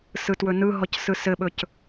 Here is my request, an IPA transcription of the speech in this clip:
sɯtwɵnɯɦɔc sɯsɘɓɵc

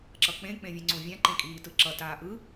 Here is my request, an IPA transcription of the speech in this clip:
ǁʌk͡pẽ k͡pẽvʲɛ̃ŋ͡ǀõvʲã ǃẽkʼiːtɯǁʌ taːʔɯ

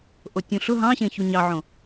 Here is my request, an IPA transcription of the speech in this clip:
ʔotʲũɬʊ ɦɑ̃ɕẽçu ɲɑʕõ

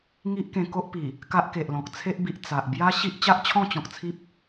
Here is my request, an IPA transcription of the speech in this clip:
ŋi˦ʔkẽ˧ko˦ʔpi˨˩ | ka˦ʔke˨ʔlɔ̃˨k̚ t͡sʰe˦ʔbi˨ʔ t͡sa˨ʔ bja˦ɕi˦ʔ t͡ɕa˦ʔt͡ɕʰɔ̃˥˧t͡ɕɔ̃˨k̚t͡sʰi˦p̚

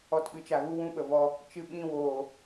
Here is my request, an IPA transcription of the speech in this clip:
ɔ˧tɓɨ˨t͡ʃa˨ ɣu˦wũ˦ɓə˨ vɔ˧ | t͡ʃɨ˧ɓĩ˧woː˨

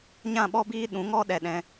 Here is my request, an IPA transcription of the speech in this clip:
ɲã˦˨ɓɔ˦biː˦ ɗũ˨˦ŋɔ˦ ɗɛ˧ɗɛ̃˧

